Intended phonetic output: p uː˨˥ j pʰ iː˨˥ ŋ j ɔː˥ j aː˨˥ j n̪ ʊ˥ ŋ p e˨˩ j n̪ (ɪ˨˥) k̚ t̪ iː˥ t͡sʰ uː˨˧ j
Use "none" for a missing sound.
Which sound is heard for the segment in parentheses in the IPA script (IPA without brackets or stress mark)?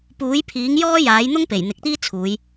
ɪ˨˥